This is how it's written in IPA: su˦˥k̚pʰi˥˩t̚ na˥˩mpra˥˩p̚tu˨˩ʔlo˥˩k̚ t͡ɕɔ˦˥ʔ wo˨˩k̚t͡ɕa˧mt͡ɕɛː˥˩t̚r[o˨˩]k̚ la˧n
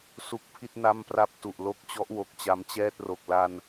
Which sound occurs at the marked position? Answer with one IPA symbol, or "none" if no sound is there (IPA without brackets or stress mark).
o˨˩